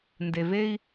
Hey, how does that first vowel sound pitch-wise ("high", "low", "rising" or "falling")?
low